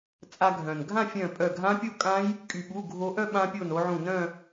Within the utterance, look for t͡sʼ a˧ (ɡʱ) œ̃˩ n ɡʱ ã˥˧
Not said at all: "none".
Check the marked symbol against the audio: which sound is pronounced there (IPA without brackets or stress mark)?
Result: ɡʱ